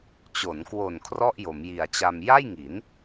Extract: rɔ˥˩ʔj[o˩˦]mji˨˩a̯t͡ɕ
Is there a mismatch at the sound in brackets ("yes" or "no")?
no